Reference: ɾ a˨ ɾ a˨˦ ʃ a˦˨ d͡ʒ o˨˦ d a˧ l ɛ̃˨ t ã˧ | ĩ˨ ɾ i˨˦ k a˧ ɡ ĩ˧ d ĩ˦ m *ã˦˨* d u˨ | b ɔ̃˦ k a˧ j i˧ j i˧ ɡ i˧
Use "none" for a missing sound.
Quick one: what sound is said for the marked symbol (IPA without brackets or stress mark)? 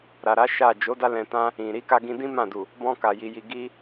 ã˦˨